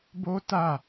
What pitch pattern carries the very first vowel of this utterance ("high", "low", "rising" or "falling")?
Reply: high